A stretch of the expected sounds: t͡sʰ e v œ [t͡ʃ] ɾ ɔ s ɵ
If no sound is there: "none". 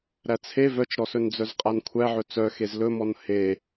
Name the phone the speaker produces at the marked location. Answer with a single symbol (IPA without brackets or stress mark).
t͡ʃ